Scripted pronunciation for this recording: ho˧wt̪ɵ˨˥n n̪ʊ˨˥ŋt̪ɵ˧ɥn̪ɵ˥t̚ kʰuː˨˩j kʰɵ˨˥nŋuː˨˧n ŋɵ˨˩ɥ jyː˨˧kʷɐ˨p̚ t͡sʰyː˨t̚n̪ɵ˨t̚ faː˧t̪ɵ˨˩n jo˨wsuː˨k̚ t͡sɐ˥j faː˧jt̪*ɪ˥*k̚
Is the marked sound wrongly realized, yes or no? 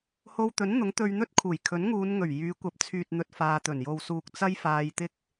no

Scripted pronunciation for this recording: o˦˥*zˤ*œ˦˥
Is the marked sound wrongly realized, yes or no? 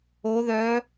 yes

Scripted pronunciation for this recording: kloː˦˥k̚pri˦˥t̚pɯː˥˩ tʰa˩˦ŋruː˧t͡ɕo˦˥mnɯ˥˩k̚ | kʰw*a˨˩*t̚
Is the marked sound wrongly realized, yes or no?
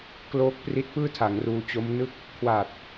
no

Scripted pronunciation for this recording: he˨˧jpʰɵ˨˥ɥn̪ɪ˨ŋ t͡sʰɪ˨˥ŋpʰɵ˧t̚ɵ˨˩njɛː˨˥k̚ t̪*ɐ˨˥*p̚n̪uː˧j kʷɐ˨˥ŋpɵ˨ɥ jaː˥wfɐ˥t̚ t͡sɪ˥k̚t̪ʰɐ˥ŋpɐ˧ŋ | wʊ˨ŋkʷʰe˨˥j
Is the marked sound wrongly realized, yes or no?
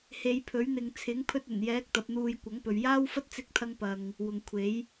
no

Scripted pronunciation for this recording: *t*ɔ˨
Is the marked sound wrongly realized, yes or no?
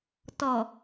no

